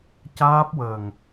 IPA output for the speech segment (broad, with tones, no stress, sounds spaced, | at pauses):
c aː˦˥ p̚ w əː˨˩ ŋ